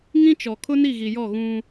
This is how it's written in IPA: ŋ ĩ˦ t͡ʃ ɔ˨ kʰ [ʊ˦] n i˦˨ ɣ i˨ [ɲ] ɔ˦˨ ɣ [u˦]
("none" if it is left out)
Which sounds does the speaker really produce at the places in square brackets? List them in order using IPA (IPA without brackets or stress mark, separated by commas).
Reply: ʊ˦, j, ũ˦